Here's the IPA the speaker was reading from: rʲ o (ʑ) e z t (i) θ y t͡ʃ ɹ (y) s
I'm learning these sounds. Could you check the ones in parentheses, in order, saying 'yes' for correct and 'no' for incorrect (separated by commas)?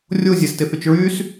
no, no, yes